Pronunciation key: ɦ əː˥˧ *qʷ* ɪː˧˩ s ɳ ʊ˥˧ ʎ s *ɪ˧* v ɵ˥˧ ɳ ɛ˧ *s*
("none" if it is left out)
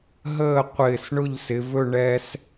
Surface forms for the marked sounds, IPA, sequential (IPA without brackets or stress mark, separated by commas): qʷ, ɪ˩˧, s